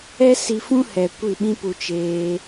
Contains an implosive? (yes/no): yes